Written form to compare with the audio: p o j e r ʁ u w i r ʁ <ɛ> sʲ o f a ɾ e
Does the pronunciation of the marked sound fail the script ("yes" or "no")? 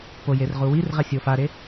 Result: no